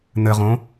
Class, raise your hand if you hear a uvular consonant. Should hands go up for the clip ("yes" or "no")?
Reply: yes